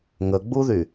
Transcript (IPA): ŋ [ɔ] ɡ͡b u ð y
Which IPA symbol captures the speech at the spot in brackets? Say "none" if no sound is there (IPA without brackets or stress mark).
ə